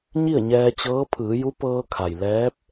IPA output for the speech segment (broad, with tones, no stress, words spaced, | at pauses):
ɲi˥˨ə̯ɲɛː˧t͡ɕɤː˧˥ pʰɯː˩˧ju˧˥pɤː˧kʰa˩j lɛː˧˥p̚